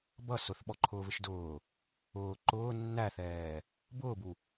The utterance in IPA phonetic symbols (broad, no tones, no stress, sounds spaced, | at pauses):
b ʌ s ʊ θ ɓ ɔ ǃʰ ʊː v ɪ ʃ d ʊː | ʊː ǃ ʊː nː æ θ ɛː | b ʊː b u